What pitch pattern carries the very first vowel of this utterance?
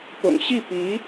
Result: low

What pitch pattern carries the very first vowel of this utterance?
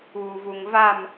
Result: low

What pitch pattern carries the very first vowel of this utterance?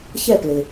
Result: falling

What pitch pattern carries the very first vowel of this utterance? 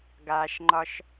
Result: low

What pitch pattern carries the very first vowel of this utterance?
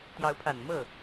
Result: rising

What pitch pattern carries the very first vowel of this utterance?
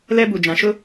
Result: high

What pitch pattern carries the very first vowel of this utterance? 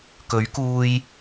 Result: rising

